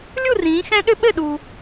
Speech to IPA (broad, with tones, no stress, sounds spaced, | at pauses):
lʲ u˥˨ r ĩː˨˦ x ɛ̃˦˥ ɗ ʏ˦˥ ɓ ɘ˥˨ ɗ uː˨